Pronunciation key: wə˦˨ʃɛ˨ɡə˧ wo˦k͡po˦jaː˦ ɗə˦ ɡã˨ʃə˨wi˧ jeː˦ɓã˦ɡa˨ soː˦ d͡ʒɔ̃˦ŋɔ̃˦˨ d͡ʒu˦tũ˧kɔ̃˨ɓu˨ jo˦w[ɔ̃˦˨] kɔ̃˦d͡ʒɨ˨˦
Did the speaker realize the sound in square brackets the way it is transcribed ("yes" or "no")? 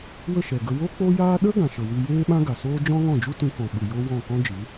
yes